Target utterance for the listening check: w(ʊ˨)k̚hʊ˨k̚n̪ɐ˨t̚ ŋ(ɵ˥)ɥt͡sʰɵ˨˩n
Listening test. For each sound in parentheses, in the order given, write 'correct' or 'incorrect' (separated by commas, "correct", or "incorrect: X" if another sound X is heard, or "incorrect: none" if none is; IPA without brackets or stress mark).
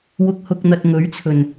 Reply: correct, incorrect: ɵ˨˥